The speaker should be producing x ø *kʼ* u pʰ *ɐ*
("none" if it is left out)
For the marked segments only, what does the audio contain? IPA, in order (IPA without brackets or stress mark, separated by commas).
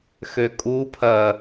kʼ, ɐ